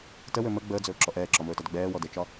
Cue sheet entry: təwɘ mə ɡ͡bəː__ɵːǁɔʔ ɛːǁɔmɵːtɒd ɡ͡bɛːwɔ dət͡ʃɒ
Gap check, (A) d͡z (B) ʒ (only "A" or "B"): A